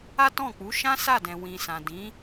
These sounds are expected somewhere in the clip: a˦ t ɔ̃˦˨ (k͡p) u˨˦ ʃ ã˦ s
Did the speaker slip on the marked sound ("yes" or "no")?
no